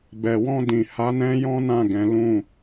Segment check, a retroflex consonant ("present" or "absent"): absent